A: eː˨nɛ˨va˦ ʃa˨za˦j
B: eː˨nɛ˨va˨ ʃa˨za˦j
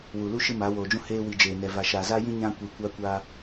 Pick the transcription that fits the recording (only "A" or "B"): B